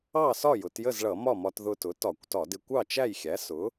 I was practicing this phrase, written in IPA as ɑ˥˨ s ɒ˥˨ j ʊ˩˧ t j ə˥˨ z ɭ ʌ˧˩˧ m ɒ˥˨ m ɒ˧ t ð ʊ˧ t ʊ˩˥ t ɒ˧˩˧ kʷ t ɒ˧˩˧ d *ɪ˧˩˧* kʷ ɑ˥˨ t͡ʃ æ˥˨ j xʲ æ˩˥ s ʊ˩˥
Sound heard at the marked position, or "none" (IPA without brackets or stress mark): ɪ˧